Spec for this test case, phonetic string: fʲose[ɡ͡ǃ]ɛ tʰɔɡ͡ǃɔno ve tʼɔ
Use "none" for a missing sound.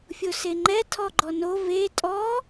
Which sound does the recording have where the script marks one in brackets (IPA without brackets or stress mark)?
ŋ͡ǃ